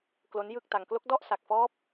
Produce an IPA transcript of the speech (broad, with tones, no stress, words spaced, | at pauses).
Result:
klo˦˥njɯ˥˩k̚ta˧ŋ klo˦˥k̚dɔ˥˩ʔsa˨˩k̚fɔː˦˥p̚